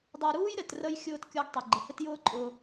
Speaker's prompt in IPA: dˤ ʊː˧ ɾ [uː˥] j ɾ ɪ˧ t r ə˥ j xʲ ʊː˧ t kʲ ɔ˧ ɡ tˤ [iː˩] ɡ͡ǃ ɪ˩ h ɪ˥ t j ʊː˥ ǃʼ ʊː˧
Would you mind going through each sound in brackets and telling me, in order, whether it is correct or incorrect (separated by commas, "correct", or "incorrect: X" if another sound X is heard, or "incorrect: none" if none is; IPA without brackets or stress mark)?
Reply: correct, incorrect: i˩